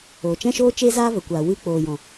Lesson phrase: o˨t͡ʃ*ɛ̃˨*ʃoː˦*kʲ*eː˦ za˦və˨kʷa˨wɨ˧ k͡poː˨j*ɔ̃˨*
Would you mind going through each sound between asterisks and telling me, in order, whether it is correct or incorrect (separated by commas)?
incorrect, incorrect, correct